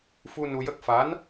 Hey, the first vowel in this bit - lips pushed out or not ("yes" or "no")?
yes